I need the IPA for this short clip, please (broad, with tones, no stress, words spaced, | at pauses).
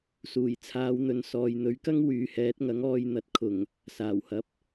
suː˨˩jt͡sʰaː˨˧wn̪ɵ˨n sɔː˨jn̪ɵ˨˥ɥkɐ˥ŋ wyː˨hɛː˨˥t̚ŋɐ˨˥ŋɔː˧j n̪ɐ˨t̚ kʰʊ˨˩ŋ | saː˨˩whɐ˨˥p̚